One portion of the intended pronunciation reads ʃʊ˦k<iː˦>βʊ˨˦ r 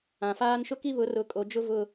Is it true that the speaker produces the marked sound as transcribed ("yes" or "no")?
no